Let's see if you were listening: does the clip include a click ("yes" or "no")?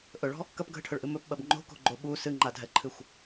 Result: yes